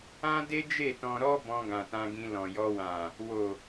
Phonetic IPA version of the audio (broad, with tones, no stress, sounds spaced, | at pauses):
ã˦ d e˦ d͡ʒ e˦˨ t ɔ̃˧ ɾ ɔ˦ b ɔ̃˧ ɡ ã˨ t ã˧ ɡ ĩ˧ l ɔ̃˨ j ɔ˧ w ã˨ | w o˨